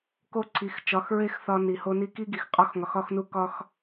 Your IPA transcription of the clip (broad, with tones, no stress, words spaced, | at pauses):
ko˦ǀʰi˨˦xt͡ʃɒ˨˦xɹe˦x θɒ˧ni˨ho˧ ni˧ki˦ɡi˨x qʼɒ˧x ŋɒ˨xɒ˧xnu˧ kɒ˦x